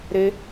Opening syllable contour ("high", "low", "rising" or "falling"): high